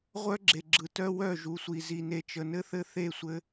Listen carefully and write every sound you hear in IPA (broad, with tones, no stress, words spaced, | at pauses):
ʁʷœ˦ɡ͡ǁe˨ɡ͡ǁɯ˨tœ˦ wœ˦˨ʒu˨sʷi˨ zi˨ne˨ t͡ʃə˨nɘ˦ θɘ˦θe˦˨ sʷɘ˦